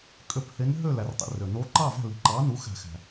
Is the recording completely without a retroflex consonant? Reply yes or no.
yes